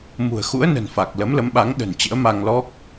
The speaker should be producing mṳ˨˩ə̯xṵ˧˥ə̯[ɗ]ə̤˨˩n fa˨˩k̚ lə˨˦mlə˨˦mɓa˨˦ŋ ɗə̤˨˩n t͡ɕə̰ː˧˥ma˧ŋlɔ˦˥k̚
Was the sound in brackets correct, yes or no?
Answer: no